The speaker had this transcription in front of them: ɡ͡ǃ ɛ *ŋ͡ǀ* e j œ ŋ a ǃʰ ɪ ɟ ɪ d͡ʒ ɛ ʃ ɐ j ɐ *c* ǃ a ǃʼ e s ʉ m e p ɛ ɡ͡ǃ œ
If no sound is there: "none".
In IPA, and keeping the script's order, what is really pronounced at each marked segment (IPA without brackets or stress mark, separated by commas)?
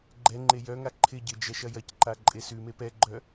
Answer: ŋ͡ǃ, c